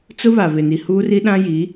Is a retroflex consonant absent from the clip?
yes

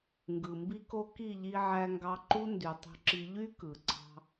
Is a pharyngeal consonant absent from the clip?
no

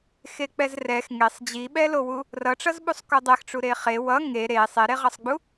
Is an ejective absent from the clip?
yes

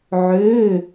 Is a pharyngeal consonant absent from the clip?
no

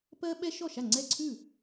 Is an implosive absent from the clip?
no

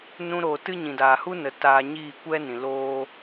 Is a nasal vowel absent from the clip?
no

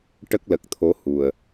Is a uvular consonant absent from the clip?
yes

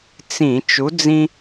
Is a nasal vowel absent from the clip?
no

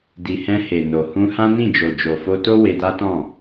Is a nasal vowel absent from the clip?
no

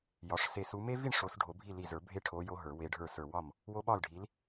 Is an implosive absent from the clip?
no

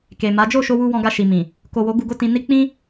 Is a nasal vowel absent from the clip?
no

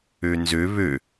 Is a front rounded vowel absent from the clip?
no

